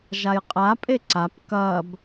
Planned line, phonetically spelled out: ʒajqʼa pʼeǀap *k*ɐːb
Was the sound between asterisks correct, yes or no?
yes